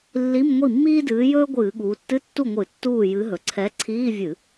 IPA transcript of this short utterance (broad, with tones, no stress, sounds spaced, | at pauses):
lː i˧˥˧ m ŋʷ i˥˩ mː iː˥ d ɨː˨˥ j ɵː˥ ɡʷ ɨː˧˩˧ ɠ uː˩˧ tː ɨ˧˥˧ tː u˥˩ ŋʷ ɨ˧˩˧ tː uː˥˩ j ɨ˨˥ ɦ ɵ˩˧ ǀʰ ɛ˨˥ ǀʰ iː˧˥˧ vʲ ɨ˧˩˧